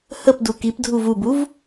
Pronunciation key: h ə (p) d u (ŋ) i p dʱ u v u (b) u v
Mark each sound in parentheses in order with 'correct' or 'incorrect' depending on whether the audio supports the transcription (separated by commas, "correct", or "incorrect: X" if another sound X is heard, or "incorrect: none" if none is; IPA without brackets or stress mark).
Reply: correct, incorrect: k, correct